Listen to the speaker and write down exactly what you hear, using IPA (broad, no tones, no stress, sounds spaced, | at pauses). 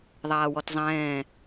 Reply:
ðˤ aː w ɔ t zˤ ɛ̃ː